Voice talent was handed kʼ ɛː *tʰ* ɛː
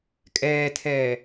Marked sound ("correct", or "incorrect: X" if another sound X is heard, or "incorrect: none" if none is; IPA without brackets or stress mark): correct